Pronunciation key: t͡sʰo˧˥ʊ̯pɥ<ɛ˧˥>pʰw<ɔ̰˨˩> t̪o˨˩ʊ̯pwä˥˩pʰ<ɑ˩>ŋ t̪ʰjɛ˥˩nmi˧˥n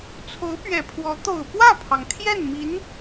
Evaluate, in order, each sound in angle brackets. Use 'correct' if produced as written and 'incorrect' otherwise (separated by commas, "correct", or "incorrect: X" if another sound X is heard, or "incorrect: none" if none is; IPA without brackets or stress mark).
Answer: incorrect: ɛ˨˩, incorrect: ɔ˧˥, correct